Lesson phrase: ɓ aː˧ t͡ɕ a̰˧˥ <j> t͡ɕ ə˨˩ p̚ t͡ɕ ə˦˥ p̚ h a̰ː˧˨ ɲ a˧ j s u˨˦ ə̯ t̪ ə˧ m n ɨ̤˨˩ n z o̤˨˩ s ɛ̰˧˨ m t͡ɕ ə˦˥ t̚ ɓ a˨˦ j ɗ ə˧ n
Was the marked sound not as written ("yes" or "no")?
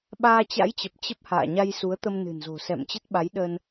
no